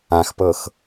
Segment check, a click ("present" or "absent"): absent